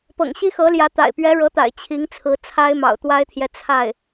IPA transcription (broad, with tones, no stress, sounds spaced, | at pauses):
p ɤ̰˨˩ ŋ ɕ i˥ x ɤ˧˥ l j ä˧˥ t̪ a̰˨˩ ɪ̯ p ɥ ɛ˧˥ ɻ ɤ˧˥ t̪ a̰˨˩ ɪ̯ t͡ɕʰ i˧˥ ŋ t͡sʰ ɹ̩˧˥ t͡sʰ a˥ ɪ̯ m ɑ̰˨˩ ʊ̯ t̪ w a˥ ɪ̯ t̪ʰ j ɛ˨ t͡sʰ a˥˩ ɪ̯